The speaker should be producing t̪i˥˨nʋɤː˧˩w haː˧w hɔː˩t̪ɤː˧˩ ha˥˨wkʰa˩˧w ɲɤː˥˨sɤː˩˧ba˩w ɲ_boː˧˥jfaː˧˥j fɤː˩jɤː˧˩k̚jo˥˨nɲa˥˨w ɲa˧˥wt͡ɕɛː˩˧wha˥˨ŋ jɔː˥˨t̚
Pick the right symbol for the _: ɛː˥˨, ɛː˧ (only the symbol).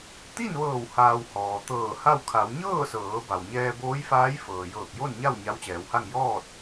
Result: ɛː˧